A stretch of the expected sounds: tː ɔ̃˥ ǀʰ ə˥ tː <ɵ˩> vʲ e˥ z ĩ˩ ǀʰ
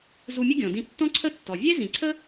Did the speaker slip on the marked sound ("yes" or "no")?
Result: yes